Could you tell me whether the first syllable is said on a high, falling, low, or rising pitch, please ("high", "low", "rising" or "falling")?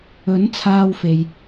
rising